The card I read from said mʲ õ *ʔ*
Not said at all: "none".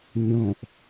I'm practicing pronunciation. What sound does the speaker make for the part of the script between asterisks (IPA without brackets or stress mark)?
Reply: ʔ